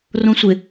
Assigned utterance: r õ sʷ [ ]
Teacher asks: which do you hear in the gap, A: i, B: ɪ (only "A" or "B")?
B